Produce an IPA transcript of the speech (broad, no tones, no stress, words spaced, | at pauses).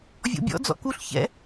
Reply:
vʲɔ̰bʲɔ̰ d͡zɔ̰kuɬ çɛ̰